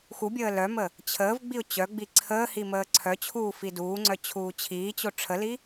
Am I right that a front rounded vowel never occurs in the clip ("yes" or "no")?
no